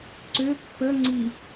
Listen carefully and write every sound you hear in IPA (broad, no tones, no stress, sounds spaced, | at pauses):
ǀ ø pː ə ŋ͡ǀ i